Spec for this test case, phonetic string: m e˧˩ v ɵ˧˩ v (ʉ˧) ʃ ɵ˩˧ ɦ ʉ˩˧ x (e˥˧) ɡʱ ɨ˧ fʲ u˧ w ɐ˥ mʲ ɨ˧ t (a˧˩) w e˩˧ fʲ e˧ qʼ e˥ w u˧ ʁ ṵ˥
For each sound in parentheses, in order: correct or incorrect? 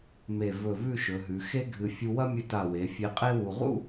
incorrect, incorrect, correct

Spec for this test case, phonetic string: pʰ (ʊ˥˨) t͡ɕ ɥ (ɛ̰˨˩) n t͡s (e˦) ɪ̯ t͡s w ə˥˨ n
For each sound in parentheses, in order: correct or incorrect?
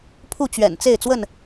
incorrect, correct, incorrect

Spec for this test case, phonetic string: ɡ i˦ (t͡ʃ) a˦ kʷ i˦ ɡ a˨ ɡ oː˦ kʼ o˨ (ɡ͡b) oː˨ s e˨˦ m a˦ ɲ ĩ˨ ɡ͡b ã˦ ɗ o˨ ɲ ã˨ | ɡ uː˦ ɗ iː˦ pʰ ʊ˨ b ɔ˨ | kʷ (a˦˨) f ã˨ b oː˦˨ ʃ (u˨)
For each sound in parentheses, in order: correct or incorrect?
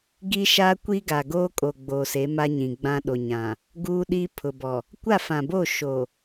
incorrect, correct, correct, incorrect

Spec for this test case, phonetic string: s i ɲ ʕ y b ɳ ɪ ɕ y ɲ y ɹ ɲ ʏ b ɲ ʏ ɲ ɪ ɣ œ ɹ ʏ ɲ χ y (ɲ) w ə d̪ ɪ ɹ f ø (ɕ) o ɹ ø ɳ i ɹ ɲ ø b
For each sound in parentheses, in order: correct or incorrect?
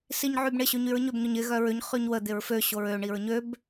correct, correct

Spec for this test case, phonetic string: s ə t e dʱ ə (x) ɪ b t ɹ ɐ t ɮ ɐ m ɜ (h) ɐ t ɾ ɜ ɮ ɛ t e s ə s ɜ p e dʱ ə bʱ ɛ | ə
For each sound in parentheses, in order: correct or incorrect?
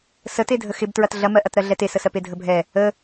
correct, incorrect

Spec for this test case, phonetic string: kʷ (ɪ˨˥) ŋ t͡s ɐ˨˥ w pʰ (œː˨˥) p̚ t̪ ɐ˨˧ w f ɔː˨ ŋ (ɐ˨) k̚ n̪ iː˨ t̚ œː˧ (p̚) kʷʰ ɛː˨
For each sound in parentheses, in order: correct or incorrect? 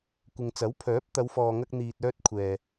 incorrect, correct, incorrect, incorrect

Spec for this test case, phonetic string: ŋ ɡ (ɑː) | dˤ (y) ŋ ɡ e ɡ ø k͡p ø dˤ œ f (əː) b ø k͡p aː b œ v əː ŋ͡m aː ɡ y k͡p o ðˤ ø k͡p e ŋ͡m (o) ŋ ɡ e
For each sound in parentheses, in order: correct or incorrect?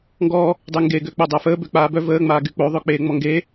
incorrect, correct, correct, incorrect

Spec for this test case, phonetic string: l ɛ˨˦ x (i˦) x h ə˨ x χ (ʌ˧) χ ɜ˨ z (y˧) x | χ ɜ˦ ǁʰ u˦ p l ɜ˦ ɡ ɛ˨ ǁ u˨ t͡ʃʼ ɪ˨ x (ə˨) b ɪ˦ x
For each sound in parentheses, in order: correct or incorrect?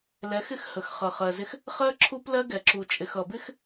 incorrect, incorrect, incorrect, incorrect

